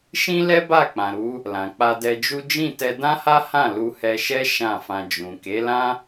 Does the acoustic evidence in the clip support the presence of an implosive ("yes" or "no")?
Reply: no